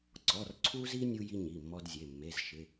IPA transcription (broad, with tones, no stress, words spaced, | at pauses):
ǀɔ˩˧˩rǀʰu˦zi˦ nʲu˦ji˦ ɲi˩˧˩mːɔ˦dzʲe˩˧˩ mːe˩˧˩zʃɪ˩˧˩